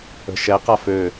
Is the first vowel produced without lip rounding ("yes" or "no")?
yes